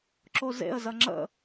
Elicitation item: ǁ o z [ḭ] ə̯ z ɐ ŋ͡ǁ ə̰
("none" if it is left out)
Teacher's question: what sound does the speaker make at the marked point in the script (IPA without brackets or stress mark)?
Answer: ḛ